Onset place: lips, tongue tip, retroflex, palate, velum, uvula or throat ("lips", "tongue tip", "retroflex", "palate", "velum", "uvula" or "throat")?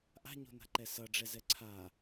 throat